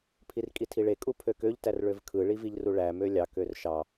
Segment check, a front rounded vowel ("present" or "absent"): present